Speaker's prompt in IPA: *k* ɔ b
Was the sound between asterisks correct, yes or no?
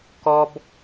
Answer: yes